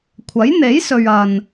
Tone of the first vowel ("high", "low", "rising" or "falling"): rising